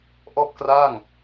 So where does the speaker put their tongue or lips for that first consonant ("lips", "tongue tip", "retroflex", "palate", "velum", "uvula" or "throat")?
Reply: throat